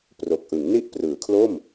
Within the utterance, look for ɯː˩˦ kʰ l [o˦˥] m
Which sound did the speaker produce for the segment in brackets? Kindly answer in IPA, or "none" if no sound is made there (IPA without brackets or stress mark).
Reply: o˥˩